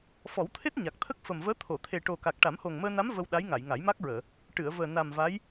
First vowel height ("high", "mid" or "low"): mid